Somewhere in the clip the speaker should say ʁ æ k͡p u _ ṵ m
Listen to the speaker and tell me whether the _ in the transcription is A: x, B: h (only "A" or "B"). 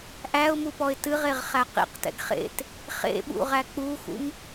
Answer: A